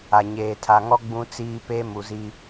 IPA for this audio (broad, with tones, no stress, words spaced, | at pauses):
a˨ ɲeː˨tʰa˨ŋɔ˦ ɡ͡bũ˦t͡siː˦pe˦ mu˨zi˦